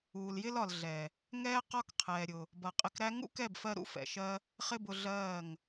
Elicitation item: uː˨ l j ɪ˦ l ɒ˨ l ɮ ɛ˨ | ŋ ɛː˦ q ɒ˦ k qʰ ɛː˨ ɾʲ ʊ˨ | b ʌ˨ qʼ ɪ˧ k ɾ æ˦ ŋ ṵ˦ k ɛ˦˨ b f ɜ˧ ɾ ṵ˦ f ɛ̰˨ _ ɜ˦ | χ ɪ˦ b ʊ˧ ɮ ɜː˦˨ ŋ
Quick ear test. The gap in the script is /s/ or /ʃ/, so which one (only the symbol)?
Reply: ʃ